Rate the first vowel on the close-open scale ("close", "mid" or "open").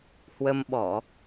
mid